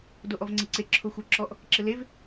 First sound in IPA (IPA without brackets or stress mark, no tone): d